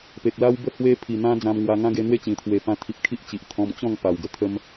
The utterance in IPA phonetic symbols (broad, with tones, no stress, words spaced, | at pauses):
pe˨k̚la˦wbə˦ hwe˦pʰi˨˩n̪ã˦ d͡zã˧mŋwa˧ŋã˦ ɡe˧n̪we˦t͡ɕĩ˨˩t̪ʰwe˨˩ pã˧t̪ʰi˨p̚kʰi˦ʔt͡ɕi˨ʔ t̪ʰɔ̃˧mt͡ɕɔ̃˥˧ŋ pa˨˩wɡə˦t̪ʰə˦m